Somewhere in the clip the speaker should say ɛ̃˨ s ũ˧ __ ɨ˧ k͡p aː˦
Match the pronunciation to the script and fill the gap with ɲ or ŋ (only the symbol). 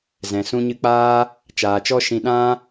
ɲ